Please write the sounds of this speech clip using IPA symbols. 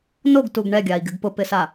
n o ɡ t u ɡ ɳ ɛ ɡʲ a i̯ ɡ ɪ ɡ p ʊ p ɪ s a

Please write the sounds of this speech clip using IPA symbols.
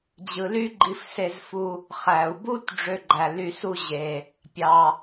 d͡ʑ ɯ˩ l y˥ ɡ͡ǃ i˧ f s e˧ z f u˧ | χ æ˩ u̯ b u˥ t ɖ͡ʐ ø˧ ɡ͡ǃ æ˩ l y˧ s u˥ ʑ e˩ | pʲ ɑ˩

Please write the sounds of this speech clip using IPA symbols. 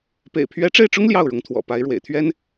p ḛ˨˩ ɪ̯ pʰ ɥ ɛ˧˥ ʈ͡ʂ e˥˩ ɪ̯ ʈ͡ʂ ʊ˥ ŋ l j ɑ˥˩ ʊ̯ ɻ ʊ˧˥ ŋ t̪ʰ w ɔ̰˨˩ p a˧˥ ɪ̯ ɻ w ḛ˨˩ ɪ̯ t̪ʰ ɥ ɛ˥ n

